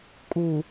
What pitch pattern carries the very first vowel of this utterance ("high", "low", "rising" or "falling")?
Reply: low